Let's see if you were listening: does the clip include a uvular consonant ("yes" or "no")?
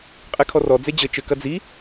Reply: yes